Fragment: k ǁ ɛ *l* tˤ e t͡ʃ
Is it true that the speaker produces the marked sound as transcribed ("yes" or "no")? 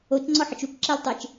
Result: yes